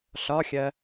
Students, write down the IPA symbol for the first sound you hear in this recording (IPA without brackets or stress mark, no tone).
ɬ